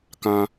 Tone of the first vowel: high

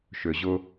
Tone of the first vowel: low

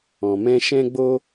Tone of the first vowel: low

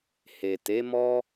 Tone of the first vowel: low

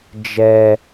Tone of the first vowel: high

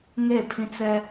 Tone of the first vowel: falling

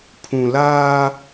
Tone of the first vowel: low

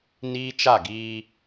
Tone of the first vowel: high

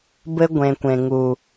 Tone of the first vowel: high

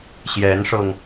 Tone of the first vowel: rising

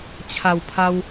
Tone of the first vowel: low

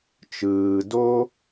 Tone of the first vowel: low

